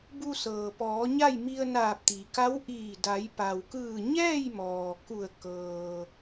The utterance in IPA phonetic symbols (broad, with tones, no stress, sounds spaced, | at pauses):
b u˧ s ɤː˩ p ɔː˩˧ ɲ a˥˨ j m i˧ ə̯ n aː˧˩ p̚ t̪ i˩ k a˧˥ w ʔ iː˧˩ d a˩˧ j p a˩ w k ɯː˧˩ ɲ ɛː˥˨ j m ɔː˩ k u˧˩ ə̯ k ɤː˩